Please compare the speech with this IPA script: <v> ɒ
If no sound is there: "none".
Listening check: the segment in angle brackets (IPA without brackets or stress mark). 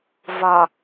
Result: v